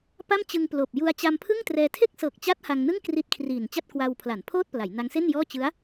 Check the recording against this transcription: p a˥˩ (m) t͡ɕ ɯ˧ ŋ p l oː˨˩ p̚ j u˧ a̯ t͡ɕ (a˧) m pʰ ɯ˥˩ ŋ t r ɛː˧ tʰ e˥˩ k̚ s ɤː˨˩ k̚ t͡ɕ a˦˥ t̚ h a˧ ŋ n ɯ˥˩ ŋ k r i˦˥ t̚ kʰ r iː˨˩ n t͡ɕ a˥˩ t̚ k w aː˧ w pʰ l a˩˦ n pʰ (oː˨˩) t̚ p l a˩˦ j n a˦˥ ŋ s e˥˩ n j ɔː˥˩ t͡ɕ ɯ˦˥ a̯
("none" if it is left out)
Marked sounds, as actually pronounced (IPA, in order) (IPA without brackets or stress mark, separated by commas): m, a˧, oː˥˩